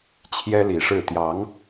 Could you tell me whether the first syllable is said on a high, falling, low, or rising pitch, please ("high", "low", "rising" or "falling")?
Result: high